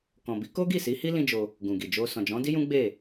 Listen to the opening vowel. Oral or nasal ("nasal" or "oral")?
nasal